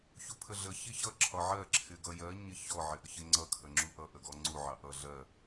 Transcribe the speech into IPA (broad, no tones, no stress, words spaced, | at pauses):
çupʰəɮə çiçʌ ǁʰɒʕɜ ǁʰɪɡʌjɜ ɲɪçɔ ʕɪʔəçɪŋ͡ǀʌ kʰəŋ͡ǁuʔʌ ʔəɡɔŋ͡ǀu ʕɑʔʌ ɮɜ